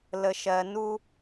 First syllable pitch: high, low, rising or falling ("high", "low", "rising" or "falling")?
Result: low